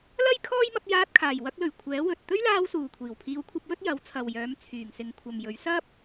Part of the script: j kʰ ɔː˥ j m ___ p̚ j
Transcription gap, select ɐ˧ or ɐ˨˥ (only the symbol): ɐ˧